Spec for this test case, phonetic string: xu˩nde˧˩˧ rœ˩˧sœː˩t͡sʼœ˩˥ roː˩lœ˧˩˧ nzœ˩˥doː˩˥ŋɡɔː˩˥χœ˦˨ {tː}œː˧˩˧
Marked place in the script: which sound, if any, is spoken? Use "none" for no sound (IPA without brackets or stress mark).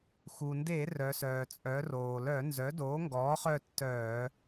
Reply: tː